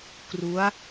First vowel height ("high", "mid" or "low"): high